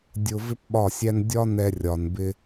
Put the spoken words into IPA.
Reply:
dʲ ʊ˧ v ɪ˦ p ɓ ɒ˦˨ sʲ æ˦ n dʲ ɒ˦ n ɛ˧ rʲ ɒ˨ n b ɪ˧

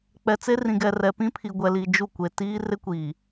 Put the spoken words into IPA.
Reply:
k͡p ɛ˨ t͡s e˦ r ĩ˨ ɡ ɛ˨ r ɛ˨ p ĩ˦ pʰ i˨ ɡʷ ɛ˦ l i˦ d͡ʒ u˦˨ kʷ e˨ t iː˦ r ɪ˦ kʷ iː˨

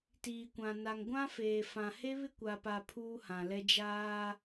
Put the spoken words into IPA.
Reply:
t iː˨ kʷ ã˨ n a˨ ŋ ɡʷ ã˦ f eː˨ f ã˨ h e˦ β ɪ˦ kʷ a˨ p a˨ pʰ uː˦ h ã˨ l ɛ˦ d͡ʒ aː˦

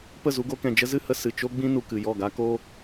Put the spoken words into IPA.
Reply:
p ə˦˨ z u˧ ɡ o˧ k ɛ̃˨ d͡ʒ ə˦ z ɨ˦ h ə˧ s ɨ˨ t͡ʃ o˦ ɡ͡b ĩ˦ n u˨ k ɨ˨ j ɔ˦˨ ɡ a˦ k o˦

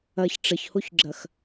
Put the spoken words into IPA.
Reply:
ɐ ç ʈ͡ʂ ə ç h o ç ɡ͡ǁ ɐ x

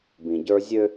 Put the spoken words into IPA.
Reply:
b ĩ˨ ɟ ə˞˦ zʲ ø˦

